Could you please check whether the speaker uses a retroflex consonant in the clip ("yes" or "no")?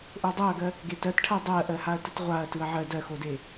yes